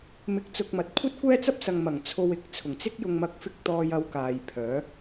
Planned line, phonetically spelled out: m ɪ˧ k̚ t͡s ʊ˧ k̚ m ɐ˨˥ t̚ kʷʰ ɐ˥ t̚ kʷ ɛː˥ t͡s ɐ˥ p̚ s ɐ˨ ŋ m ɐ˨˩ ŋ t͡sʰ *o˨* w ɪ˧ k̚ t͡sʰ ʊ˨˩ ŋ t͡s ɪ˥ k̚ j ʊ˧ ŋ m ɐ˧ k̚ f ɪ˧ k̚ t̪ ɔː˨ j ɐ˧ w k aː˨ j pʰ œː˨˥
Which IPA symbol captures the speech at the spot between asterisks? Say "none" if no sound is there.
o˧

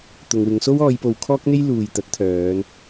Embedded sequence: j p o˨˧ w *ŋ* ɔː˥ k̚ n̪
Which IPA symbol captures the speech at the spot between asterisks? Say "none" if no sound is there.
kʰ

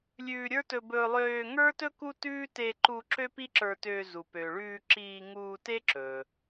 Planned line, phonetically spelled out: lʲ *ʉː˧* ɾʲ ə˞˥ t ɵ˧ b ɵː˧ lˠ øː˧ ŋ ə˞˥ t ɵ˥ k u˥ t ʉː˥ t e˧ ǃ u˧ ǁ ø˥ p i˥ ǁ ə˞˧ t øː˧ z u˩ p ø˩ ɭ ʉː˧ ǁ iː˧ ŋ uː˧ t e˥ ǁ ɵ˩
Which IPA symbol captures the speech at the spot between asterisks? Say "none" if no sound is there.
ʉː˧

